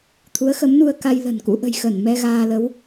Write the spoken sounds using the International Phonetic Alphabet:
t̪ʰ u˨˦ ə̯ x ə˨˦ m n u˧ ə̯ k a˧ j l ə̤˨˩ n k ṵ˧˥ ʔ ə̤˨˩ j x ə˧˩ n m ɛ˧ ɣ aː˧ l ə˨˦ w

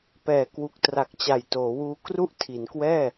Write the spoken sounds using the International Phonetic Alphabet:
p ɛː˨˩ k w u˨˩ k̚ t r a˨˩ k̚ t͡ɕ a˨˩ j t oː˩˦ w uː˧ k r u˥˩ ʔ tʰ i˩˦ n k w ɛː˥˩

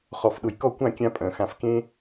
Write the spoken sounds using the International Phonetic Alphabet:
χ ɔ˧˩ f ɗ ʊ˧˩ j k ɔ˥˧ kʷ ã˥˧ kʲ ã˥ pʼ œ̃˩˧ x ã˧ f k ẽ˥

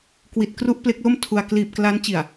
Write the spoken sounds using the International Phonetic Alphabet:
k w i˨˩ t̚ k r u˦˥ ʔ p l e˦˥ k̚ l o˥˩ m tʰ u˧ a̯ k l iː˨˩ p̚ k l a˦˥ n t͡ɕ i˨˩ a̯

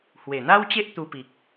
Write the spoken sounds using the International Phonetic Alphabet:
h w e˨˩ n̪ a˦ w t͡ɕ e˦ ʔ t̪ u˧ p i˨ k̚

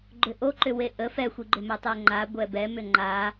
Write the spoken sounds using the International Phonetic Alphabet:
ɡ͡ǃ ʏ ʔ o ǃ ʏ w e ʔ ə f ɛ xʷ i ɡ͡ǃ ʏ m ɛ tˤ ɛ ŋ͡ǃ a ɡʷ ɛ b ɛ m ʏ ŋ͡ǃ a

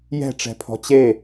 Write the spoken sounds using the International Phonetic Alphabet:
j ɛ̤ ʈ͡ʂ ɛ̤ pʰ ɔ̤ t͡ɕ e

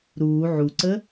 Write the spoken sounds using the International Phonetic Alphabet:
ɾ uː ʕ u ǀ ə

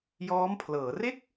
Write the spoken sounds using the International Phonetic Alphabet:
j ɔː˦˥ m pʰ l ɤː˩˦ r e˥˩ k̚

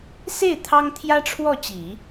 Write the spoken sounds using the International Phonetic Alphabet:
s e˥˩ ɪ̯ t̪ʰ ɑ˥ ŋ t̪ʰ j ä˥ ʈ͡ʂʰ w ɔ˥˩ t͡ɕ i˨˩˦

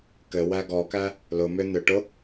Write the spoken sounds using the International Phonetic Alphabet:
k ɘ w æ ɡ ɔ k æ | l ʊ m ʏ n̪ ʏ ʈ ʊ

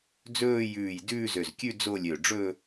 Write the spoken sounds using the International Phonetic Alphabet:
d͡z ɵː˥˧ j ʉː˧˩ j d ʉː˥˧ z ø˧˩ z kʲ ʉ˥˧ d͡z o˥˧ lʲ ø˧˩ ɖ͡ʐ ɵ˥˧

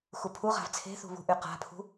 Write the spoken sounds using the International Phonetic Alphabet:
x u pʰ u ʁ a̤ v t͡sʰ e̤ θ ṳ β ṳ ʔ y q a̤ pʰ ṳ

